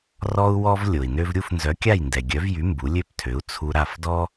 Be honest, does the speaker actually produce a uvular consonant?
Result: no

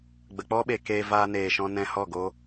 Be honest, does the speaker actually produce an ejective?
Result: no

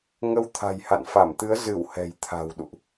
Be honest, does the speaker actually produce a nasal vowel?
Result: no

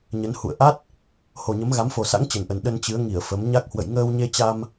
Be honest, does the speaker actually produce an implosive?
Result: yes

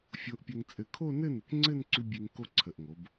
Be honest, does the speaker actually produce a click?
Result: yes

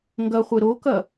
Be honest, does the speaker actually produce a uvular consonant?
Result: yes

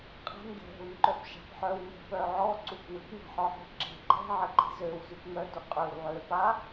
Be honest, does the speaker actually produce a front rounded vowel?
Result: yes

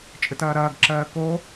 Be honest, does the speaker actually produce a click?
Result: yes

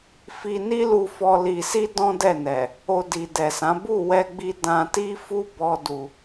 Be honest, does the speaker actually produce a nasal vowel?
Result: yes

